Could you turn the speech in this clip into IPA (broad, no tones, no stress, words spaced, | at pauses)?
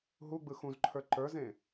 ɦuɡ͡bɯ xũzǃʰə˞ ǃə˞zẽ